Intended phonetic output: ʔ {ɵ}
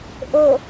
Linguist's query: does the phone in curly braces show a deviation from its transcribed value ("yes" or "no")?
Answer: no